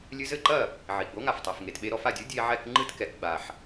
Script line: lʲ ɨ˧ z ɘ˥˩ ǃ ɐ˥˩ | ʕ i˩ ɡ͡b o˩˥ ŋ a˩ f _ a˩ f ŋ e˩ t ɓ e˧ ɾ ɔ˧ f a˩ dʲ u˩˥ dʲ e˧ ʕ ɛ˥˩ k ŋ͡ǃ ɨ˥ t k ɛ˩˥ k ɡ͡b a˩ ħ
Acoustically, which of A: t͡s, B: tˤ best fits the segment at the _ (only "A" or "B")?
B